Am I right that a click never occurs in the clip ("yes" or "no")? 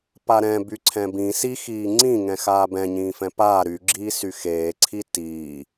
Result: no